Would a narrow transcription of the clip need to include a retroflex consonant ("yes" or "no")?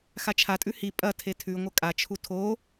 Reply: no